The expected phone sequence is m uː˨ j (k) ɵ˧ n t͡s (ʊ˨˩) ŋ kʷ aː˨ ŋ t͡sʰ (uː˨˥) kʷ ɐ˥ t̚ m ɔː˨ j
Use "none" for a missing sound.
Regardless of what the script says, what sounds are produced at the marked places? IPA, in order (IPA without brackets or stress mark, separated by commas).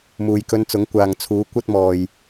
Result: k, ʊ˨˥, uː˨˥